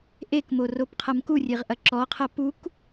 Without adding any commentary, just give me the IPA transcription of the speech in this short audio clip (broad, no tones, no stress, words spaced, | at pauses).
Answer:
ʔekmo ropqʰɐmkurʲeʁ ʔɐǁɔqʰɐ puk